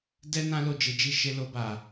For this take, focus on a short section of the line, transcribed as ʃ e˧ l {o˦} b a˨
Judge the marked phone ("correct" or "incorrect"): incorrect